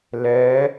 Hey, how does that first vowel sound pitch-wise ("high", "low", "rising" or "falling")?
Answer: rising